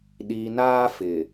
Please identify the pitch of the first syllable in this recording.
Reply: low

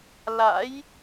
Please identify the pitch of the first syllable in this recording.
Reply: rising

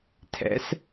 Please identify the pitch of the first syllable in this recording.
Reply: rising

